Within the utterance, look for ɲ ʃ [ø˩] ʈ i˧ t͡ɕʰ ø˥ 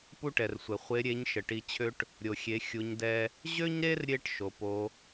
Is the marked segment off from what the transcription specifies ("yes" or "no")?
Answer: yes